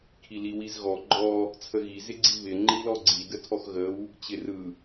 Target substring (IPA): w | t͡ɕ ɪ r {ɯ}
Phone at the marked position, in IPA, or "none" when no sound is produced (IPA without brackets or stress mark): ɯ